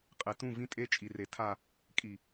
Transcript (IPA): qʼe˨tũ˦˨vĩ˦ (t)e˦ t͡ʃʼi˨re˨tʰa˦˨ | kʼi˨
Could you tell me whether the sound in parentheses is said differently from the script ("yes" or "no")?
yes